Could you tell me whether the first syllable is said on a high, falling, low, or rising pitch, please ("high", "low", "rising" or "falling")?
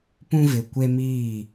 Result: high